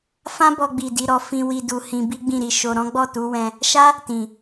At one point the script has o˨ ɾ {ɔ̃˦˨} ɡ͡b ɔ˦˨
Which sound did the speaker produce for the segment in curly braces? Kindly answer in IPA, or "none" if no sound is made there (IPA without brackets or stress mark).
ɔ̃˨˦